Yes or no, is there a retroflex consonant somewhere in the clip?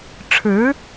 yes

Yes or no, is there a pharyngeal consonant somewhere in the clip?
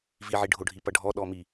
yes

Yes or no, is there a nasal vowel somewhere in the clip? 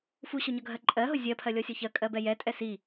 no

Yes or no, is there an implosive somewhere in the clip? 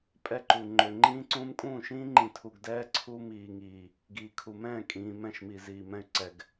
no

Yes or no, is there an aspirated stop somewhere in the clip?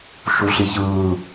no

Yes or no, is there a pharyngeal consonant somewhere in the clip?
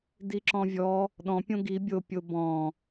no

